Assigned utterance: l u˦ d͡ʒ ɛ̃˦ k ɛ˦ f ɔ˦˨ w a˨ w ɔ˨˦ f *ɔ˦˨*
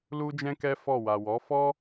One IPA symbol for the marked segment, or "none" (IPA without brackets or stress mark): ɔ˦